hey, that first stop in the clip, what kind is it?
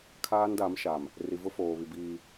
aspirated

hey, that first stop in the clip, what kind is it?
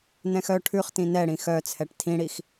aspirated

